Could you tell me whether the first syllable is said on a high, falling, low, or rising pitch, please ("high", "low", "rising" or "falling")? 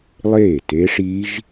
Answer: falling